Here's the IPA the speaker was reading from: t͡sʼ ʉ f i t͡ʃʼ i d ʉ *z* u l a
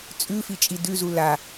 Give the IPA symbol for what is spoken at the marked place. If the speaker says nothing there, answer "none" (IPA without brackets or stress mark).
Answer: z